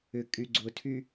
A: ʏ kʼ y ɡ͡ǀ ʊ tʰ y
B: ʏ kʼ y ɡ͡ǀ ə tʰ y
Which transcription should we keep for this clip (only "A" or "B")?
A